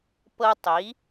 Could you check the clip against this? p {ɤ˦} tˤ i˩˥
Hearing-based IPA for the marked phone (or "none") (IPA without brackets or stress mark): ɤ˦